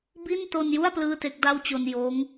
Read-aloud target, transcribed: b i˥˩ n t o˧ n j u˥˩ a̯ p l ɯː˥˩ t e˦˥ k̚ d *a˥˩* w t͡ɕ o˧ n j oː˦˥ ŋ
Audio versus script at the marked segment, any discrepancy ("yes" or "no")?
no